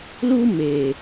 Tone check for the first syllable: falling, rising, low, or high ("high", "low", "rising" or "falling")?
high